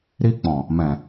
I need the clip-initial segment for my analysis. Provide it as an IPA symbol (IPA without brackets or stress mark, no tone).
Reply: ɾ